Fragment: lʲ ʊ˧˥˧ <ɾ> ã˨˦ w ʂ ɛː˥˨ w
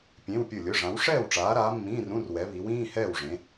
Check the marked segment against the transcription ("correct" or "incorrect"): incorrect